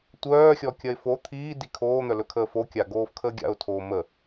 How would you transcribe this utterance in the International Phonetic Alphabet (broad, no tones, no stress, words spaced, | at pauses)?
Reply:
tʷœːxʲɔkʲɐɪ̯ fo t̪ʰiːdi kʰoːn̪œlɵkʰəː fokʲaɡoːfkʰəː ɡʲa̰ʊ̯tʰoː mə